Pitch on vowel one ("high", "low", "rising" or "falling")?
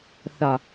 low